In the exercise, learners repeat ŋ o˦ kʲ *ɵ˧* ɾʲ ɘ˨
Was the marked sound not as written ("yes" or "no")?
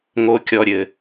yes